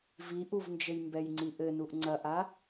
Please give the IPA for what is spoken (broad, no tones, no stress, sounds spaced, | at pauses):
v i ʔ u v n d͡ʒ ɘ j m b ɛ j ŋ͡ǀ i ʔ ɘ n u ʔ ŋ͡ǀ ɐ ʔ a